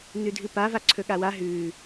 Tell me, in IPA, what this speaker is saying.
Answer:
nʉdʱɨpava ǀʰɵɠawa ɦʉ

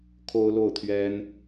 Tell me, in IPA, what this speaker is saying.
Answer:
kʰo˥ʊ̯lo˥˩ʊ̯ t̪ʰɥɛ˥n

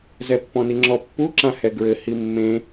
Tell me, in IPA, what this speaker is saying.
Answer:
zɛpːɔ̃niŋ͡ǁɔ pːu ǁãhɛɡɹɘ himːẽ

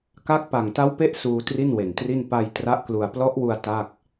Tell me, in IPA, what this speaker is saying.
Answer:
ka˥˩k̚ pa˨˩ŋ ta˦˥wpe˦˥ʔ suː˧ tri˥˩nwe˨˩ntri˥˩n pa˧j tra˦˥ʔklu˧a̯ plɔ˦˥ʔwu˧a̯ ta˥˩k̚

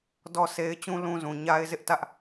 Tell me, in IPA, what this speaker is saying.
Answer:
dɔ˦˨se˦ɪ̯ t͡ɕũ˦lũ˦zũ˨ ɲa˦ɪ̯zɪ˦ʔtä˦ʔ

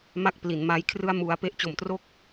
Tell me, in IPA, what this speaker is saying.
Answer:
ma˥˩k̚pli˩˦nma˦˥jkʰrɯ˥˩a̯ mu˦˥a̯ pe˦˥ʔt͡ɕo˨˩mtro˥˩k̚

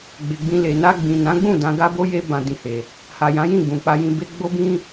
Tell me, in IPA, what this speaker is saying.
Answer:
ɡ͡be˨ɡ͡bĩ˧le˨ na˧ɡ͡bĩ˨nã˨˦ɡ͡bũ˦˨ dã˧ɡa˦bo˦je˦ bã˧dĩ˧he˨ | ha˨jã˨˦jĩ˦˨ ɡ͡bũ˨k͡pa˧jĩ˧be˦ ɡ͡bo˦bĩ˦

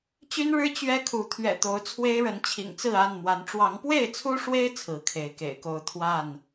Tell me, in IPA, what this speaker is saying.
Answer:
t͡ɕy˦nɻɻ̩˦ t͡ɕɥɛ˦kʰu˨˦ t̪ʰɥɛ̰˨˩t̪o˨˦ʊ̯ t͡sʰwe˦ɪ̯ɻə˨˦nt͡ɕʰḭ˨˩ŋt͡sɹ̩˥˨ a˥˨nmwa˨˦n ʈ͡ʂwɑ˨˦ŋpwe˥˨ɪ̯t͡sʰu˦ʂwe˦ɪ̯ t͡sʰɹ̩˨˦kʰe˨˦ɪ̯kḛ˨˩ɪ̯ko˥˨ʊ̯ t̪ʰwa˥˨n

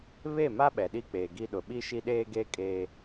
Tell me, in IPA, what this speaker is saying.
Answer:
βe˦˨ma˦ ɓɛ˨ɗi˦˨k͡peː˨ɡi˦ ɗʊ˨ ɓi˦ʃi˦ɗeː˦ɡeː˦ kʼe˦

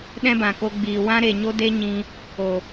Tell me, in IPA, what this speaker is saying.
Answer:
ɗɛ̃˦bã˨ko˧ɡ͡biː˨ wã˦ɾe˨ɲo˦ de˦ɲĩ˧ | o˨

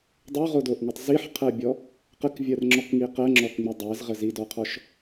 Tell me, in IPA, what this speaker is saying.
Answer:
dˤoʁodoʔŋitˤ ziħqʰɜbʲɔ | qəkvʲɜrŋ͡ǁɔkŋi qɜŋ͡ǁɔkŋ͡mi dˤɜzʁə zidɔqʰɔʃ

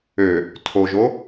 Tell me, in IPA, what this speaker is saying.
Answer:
ø | tʰoʒo

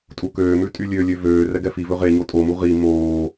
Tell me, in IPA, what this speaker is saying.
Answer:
tʼukøːmʉ tʼylʲølʲø vøː rɛɡɛfivɵ ʁe ɲotʼomu ʁi moː

